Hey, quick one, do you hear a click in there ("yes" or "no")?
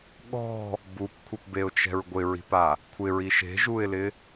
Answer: no